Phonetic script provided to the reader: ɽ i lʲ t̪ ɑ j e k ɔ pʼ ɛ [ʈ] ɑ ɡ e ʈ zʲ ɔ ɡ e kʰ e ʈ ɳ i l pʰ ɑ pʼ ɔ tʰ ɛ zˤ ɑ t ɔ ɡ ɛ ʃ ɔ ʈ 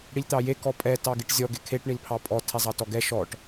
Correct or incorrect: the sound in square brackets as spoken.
incorrect: t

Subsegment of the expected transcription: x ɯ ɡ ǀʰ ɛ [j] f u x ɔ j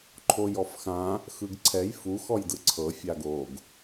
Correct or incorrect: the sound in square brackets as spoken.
correct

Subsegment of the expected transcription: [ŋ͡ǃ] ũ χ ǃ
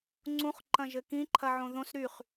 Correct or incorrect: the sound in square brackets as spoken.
incorrect: ŋ͡ǀ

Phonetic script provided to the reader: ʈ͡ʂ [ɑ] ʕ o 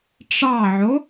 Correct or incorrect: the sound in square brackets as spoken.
correct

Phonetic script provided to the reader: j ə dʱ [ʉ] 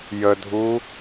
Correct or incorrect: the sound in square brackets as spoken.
incorrect: u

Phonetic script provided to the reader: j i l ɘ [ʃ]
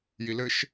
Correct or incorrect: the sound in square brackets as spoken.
correct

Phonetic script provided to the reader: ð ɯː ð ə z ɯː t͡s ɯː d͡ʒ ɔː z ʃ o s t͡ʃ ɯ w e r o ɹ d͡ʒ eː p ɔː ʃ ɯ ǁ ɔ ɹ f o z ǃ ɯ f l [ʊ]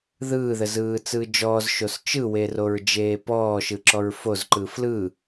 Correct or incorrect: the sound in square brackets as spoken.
incorrect: ɯ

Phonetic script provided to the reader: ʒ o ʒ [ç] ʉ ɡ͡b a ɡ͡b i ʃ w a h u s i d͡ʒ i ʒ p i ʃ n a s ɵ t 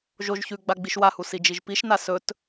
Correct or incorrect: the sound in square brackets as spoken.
correct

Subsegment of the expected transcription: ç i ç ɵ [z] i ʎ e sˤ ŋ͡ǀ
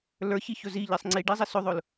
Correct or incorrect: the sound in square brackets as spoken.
correct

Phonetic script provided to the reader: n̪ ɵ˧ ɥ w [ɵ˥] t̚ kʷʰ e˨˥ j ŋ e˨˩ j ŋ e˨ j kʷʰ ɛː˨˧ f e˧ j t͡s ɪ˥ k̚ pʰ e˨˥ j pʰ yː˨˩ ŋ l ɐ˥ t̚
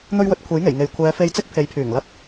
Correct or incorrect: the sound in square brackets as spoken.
incorrect: ɵ˨˥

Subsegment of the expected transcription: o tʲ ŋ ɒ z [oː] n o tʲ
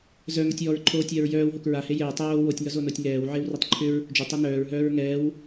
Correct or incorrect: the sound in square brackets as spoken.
incorrect: o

